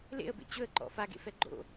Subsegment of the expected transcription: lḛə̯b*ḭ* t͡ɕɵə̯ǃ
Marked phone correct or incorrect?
incorrect